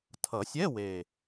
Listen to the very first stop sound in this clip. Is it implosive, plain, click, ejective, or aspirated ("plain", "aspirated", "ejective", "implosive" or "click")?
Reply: aspirated